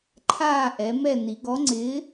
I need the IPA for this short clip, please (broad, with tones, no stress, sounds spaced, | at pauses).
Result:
ǃʰ aː˥˨ ʔ ɛ˩˧ m ɛ˥˨ n i˩˧ ɡ ɔ˨˥ ŋ͡ǀ ɪː˨˥